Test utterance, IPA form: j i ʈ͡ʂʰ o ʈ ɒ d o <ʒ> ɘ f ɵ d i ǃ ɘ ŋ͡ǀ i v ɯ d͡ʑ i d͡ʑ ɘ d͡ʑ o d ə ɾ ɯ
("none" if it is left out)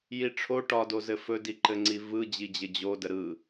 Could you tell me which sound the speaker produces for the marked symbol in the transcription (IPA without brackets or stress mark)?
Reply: z